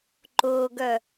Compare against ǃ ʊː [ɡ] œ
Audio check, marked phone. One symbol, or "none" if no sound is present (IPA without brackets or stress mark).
ɡ